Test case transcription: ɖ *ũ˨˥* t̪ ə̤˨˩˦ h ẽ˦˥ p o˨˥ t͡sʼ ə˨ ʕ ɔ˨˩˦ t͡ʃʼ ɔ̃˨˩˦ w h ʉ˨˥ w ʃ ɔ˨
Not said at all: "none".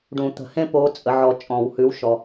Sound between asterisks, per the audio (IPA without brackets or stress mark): ũ˨˩˦